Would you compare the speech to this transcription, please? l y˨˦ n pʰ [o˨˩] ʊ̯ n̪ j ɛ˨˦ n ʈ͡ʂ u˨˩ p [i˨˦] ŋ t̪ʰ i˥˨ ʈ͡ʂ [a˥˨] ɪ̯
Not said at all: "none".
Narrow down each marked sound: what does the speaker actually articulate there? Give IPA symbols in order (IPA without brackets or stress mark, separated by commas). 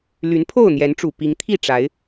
o˥˨, i˨˦, a˨˦